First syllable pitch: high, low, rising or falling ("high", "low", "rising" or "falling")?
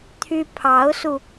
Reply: high